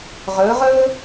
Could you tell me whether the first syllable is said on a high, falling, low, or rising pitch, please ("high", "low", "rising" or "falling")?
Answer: rising